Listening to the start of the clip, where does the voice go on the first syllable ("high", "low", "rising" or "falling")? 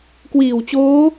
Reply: low